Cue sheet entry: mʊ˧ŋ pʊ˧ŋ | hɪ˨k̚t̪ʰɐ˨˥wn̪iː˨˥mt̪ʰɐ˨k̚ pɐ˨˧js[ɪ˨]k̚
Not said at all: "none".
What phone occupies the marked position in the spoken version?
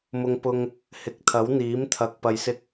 ɪ˧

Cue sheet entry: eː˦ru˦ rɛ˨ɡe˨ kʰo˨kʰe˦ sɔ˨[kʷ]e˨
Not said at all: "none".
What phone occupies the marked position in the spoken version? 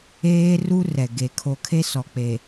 k͡p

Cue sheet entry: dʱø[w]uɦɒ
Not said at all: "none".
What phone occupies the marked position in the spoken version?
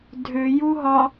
j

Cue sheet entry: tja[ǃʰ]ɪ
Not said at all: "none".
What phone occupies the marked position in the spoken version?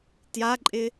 ǃʼ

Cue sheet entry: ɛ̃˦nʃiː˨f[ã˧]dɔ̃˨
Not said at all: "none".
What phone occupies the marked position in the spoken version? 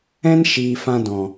ã˧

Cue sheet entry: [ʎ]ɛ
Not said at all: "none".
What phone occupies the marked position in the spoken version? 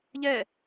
ʎ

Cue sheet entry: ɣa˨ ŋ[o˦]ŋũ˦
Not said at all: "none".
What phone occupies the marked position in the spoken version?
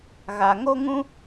o˦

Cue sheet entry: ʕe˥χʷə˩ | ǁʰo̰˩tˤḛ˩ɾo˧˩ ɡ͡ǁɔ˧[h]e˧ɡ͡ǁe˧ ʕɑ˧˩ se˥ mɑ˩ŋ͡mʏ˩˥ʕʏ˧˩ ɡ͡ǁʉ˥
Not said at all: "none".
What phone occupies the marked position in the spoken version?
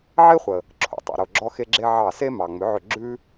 x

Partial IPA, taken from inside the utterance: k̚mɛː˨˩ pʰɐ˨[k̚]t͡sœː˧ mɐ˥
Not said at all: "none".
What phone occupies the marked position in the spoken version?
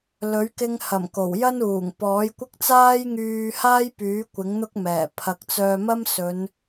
k̚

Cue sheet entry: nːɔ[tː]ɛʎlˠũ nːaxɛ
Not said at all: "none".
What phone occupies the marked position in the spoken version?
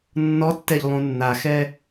tː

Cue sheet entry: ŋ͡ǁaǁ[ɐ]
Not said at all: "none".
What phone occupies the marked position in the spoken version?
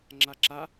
a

